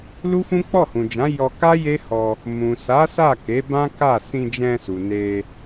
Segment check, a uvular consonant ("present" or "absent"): absent